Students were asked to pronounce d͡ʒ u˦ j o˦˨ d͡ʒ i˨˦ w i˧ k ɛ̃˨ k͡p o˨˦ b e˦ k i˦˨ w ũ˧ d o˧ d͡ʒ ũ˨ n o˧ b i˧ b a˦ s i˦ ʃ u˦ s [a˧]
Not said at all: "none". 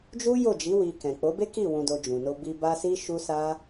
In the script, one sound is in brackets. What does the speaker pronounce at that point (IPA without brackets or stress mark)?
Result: a˦